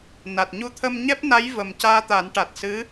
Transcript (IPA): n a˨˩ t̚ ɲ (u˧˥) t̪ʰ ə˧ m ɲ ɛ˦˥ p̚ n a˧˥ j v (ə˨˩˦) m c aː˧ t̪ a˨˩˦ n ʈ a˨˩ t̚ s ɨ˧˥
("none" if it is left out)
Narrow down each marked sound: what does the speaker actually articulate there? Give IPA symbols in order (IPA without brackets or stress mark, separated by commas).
u˧˥, ə˨˩